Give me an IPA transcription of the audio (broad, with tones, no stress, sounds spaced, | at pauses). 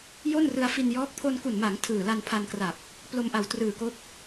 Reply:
j o˥˩ n r ɯ˧ a̯ f i˧ n j ɔː˦˥ k̚ pʰ o˧ n k u˨˩ n m a˩˦ ŋ tʰ ɯː˨˩ l a˧ n pʰ a˧ n k r a˨˩ p̚ | p l o˧ m ʔ a˨˩ w t r ɯː˨˩ k o˦˥ k̚